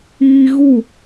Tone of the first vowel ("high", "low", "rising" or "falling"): high